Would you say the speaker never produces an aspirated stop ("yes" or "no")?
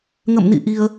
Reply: yes